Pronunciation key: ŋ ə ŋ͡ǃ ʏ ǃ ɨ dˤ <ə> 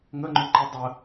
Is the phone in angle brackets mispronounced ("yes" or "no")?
no